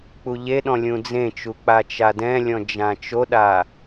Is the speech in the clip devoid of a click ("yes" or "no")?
yes